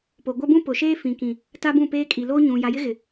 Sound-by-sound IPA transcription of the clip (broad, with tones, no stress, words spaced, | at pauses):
po˨ ɡʷa˦bũ˦pʊ˨ʃeː˦ fĩ˨ kĩ˨ | ta˦bũ˦˨peː˦ kʼi˨ loː˦ɲũ˨ ja˨jɪ˦ɣɪ˨